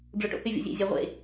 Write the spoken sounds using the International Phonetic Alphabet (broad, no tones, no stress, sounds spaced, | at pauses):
ɖ͡ʐ o ʈ o̰ h y vʲ o̰ zʲ ḛ zʲ æ ʁʷ ḛ